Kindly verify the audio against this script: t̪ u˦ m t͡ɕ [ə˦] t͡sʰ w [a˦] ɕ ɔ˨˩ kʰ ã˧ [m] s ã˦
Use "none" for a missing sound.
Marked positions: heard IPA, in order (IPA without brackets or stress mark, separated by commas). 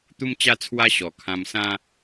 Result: a˦, a˦, m